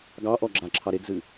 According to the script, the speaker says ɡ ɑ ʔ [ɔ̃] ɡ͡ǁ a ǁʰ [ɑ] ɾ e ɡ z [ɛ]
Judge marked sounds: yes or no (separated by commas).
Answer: no, yes, no